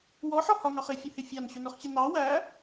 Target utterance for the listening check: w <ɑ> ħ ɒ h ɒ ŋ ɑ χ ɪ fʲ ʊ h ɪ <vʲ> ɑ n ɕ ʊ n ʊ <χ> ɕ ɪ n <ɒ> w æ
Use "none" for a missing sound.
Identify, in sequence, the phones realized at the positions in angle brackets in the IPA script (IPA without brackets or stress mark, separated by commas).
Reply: ɔ, fʲ, χ, ɑ